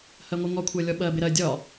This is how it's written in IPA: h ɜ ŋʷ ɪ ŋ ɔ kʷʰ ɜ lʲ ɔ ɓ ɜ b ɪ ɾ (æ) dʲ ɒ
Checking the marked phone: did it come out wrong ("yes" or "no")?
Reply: yes